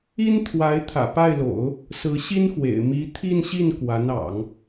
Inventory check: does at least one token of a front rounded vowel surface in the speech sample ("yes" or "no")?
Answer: no